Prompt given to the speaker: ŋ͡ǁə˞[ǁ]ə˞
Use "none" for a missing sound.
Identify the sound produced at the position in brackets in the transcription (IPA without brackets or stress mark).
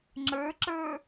ǁ